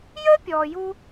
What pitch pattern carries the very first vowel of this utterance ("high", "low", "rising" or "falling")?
high